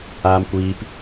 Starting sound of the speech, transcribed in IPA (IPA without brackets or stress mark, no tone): aː